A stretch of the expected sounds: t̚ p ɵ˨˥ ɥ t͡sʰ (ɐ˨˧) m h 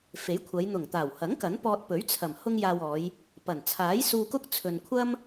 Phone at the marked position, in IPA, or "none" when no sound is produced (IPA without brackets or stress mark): ɐ˨˩